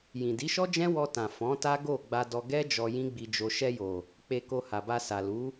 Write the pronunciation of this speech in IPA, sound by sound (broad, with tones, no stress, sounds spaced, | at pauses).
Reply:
j ĩ˨ d i˨˦ ʃ ɔ˦ d͡ʒ ɛ̃˦ w ɔ˧ t ã˨ f ɔ̃˨˦ t a˦ ɡ o˦˨ ɡ͡b a˧ d ɔ˧ ɡ ɛ˦ d͡ʒ ɔ˧ j ĩ˦ ɡ͡b i˧ d͡ʒ o˧ ʃ ɛ˧ j o˨ | k͡p e˧ k o˧ h a˨ b a˧ s a˨ l u˨˦